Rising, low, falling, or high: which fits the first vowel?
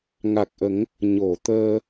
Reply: low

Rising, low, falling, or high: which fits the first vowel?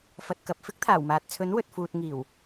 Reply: low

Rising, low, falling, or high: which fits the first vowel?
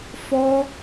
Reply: high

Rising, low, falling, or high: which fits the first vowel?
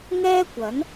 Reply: high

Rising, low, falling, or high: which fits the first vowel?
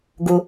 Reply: low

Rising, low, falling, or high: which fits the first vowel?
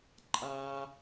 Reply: high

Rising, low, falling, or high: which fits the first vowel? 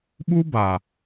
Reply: high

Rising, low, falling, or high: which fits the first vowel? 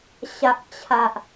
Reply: low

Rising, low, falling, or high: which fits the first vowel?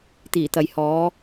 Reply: low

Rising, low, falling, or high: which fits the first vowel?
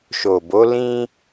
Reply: low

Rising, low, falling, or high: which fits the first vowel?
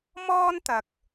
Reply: high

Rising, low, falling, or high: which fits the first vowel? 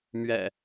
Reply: low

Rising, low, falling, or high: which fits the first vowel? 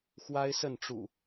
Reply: high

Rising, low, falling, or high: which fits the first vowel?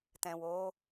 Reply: low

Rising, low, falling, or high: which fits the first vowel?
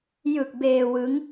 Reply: low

